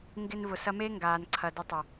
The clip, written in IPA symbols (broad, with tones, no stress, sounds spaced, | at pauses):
ŋ ɡ ɪ˧ n v ʊ˨ s ɐ˧ m e˦ ŋ ɡ aː˨ n ǀʰ ɐ˨ d ə˧ tˤ ə˨